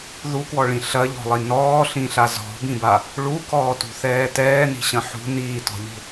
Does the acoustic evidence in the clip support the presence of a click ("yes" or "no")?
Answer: no